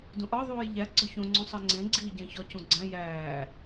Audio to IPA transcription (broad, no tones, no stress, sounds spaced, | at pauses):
d ũ ʔ ɒ ðˤ uː j ʎ æ ɡ͡ǀ ɒ ç õ ŋ͡ǀ ũ sˤ e ŋ͡ǀ ẽ ɡ͡ǀ iː ɟ æ̃ ç ɒ c ũ ɡ͡ǀ æ̃ j æː